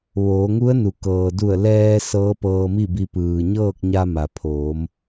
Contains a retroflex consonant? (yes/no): no